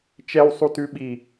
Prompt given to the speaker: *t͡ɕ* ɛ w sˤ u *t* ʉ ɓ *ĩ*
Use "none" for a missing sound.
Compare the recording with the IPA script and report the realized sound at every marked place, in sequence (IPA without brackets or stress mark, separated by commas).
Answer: t͡ʃ, t, i